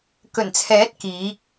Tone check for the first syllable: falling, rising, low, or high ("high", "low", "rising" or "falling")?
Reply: low